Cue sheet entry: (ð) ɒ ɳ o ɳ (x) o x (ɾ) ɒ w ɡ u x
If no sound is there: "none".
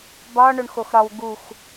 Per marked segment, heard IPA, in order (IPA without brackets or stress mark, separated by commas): b, x, ɾ